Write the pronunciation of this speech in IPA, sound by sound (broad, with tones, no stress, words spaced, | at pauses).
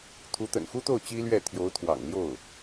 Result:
t̪ʰu˧˥t̪ə̰˨˩nxu˥t̪o˥˩ʊ̯ t͡ɕi˥lɥɛ˥˩ t̪ʰjo˧˥ʊ̯ t̪ʰwɑ̰˨˩ŋljo˥˩ʊ̯